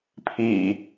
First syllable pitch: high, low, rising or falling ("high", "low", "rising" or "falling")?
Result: low